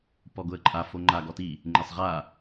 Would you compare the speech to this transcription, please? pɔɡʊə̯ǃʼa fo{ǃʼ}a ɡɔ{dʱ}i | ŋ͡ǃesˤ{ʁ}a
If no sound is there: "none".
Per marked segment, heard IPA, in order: ŋ͡ǃ, t, ʁ

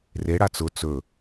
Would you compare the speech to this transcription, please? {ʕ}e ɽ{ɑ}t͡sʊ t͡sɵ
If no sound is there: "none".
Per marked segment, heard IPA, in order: r, a

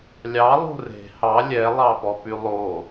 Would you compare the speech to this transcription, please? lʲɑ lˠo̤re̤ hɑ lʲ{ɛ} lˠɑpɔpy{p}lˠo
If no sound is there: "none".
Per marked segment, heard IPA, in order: ɛ, none

